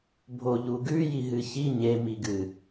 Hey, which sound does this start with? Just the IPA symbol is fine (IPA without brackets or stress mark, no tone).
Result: bʱ